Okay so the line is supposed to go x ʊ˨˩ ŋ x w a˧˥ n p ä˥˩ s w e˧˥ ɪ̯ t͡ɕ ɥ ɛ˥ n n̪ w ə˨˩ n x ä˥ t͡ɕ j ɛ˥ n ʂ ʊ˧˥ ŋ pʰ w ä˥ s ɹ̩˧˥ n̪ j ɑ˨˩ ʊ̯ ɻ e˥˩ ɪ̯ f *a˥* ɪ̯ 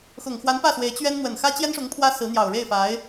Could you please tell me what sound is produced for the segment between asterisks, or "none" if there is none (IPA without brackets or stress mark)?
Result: a˧˥